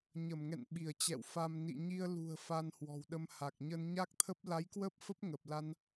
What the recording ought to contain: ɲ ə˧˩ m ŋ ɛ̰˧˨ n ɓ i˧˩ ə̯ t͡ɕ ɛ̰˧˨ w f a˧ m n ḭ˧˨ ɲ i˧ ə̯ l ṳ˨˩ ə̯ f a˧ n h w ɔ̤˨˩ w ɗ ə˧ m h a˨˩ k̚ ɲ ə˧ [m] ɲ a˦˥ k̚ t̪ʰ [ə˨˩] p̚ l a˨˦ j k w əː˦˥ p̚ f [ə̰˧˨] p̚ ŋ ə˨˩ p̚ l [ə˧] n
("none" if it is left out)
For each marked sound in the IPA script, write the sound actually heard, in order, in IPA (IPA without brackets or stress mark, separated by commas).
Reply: n, ə˦˥, ə˦˥, a˧